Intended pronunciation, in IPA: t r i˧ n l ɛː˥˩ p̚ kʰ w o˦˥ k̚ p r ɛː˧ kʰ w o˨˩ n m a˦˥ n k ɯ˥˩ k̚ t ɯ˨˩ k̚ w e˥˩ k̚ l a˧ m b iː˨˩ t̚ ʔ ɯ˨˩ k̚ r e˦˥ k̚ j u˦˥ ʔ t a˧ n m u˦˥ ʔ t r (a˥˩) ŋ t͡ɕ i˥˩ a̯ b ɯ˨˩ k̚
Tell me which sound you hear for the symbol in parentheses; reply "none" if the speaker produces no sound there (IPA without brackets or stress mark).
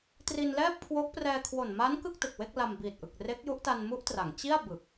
a˩˦